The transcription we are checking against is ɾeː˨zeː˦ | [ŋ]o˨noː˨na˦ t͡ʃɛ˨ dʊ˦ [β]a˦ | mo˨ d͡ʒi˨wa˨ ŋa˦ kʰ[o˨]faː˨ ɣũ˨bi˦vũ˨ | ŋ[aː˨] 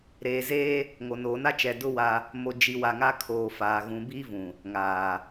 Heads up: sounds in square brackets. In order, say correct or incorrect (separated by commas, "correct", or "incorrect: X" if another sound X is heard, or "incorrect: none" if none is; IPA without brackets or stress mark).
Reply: correct, incorrect: w, incorrect: oː˨, correct